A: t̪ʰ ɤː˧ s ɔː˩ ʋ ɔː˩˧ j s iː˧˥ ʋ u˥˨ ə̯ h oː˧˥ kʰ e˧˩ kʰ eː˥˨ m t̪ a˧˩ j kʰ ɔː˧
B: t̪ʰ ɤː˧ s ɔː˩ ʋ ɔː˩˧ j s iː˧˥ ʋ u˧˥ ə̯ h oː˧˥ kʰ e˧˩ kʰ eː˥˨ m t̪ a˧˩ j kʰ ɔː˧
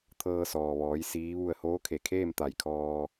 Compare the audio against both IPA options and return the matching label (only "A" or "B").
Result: A